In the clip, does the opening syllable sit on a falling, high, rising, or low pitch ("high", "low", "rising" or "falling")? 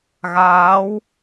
rising